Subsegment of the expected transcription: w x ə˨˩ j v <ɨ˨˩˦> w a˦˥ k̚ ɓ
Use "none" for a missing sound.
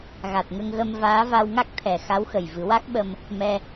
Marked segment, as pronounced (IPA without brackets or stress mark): ɨ˨˩˦